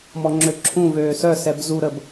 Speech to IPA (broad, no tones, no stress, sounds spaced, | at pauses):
m ɔ ŋ͡ǁ ø ǁʰ ũ v øː s œ s ɛ b z u ɾ ə b